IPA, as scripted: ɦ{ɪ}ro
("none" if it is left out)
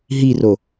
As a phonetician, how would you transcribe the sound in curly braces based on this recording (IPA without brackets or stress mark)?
i